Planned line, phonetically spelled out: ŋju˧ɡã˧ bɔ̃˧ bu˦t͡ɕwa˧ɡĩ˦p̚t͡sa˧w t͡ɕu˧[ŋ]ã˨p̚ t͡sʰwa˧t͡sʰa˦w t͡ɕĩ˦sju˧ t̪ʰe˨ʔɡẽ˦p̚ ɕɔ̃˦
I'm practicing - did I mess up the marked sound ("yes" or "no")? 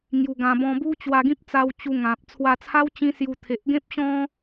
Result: no